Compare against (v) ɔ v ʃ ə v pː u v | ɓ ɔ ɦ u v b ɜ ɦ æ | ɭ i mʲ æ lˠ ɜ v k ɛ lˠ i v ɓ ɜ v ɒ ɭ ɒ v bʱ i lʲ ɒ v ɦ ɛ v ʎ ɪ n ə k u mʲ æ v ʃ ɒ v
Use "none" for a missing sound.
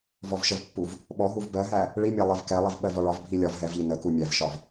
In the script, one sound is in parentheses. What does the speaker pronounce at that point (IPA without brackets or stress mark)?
v